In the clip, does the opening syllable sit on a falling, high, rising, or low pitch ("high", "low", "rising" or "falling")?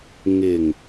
low